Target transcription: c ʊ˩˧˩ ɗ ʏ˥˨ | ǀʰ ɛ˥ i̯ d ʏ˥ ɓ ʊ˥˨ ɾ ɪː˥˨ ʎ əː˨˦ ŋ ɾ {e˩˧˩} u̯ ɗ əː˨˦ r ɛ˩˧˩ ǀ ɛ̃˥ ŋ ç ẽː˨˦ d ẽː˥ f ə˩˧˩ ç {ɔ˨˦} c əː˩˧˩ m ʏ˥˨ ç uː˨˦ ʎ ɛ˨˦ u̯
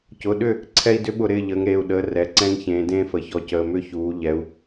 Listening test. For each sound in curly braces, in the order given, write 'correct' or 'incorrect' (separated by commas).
correct, correct